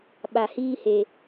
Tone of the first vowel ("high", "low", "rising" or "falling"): low